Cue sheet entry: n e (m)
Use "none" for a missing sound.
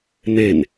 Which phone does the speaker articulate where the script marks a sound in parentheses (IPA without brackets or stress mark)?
n